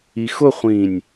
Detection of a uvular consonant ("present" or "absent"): present